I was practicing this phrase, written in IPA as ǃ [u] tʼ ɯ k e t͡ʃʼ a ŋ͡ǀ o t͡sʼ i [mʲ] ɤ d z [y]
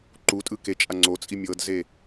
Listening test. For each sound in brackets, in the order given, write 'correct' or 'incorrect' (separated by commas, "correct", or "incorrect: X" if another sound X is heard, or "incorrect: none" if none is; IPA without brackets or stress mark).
correct, correct, incorrect: e